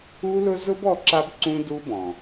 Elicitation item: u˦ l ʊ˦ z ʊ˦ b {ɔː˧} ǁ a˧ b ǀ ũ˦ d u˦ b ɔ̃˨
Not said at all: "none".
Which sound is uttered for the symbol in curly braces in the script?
ɔ˧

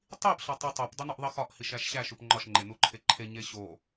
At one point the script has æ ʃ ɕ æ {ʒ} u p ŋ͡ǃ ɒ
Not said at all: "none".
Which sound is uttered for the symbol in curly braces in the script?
ʃ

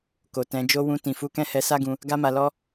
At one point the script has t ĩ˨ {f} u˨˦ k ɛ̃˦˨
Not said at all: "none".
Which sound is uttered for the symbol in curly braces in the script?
f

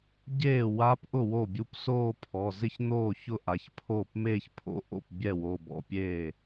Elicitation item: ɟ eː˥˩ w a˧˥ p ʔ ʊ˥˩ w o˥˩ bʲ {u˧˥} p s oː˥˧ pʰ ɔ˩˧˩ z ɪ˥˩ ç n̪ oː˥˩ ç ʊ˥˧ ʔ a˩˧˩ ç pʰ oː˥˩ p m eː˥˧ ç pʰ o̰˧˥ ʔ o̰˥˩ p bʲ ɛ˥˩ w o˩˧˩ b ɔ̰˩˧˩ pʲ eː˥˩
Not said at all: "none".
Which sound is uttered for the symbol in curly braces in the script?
u˧˥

